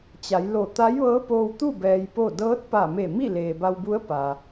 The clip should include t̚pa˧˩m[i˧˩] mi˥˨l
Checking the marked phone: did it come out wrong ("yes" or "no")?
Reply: yes